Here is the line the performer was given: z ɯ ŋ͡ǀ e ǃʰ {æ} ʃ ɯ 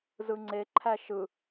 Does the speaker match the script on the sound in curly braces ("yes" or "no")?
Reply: yes